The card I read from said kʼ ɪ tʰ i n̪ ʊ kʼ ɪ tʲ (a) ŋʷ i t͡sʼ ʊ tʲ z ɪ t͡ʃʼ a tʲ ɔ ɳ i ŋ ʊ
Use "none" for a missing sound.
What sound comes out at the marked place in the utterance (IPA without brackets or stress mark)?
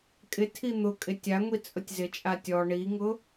a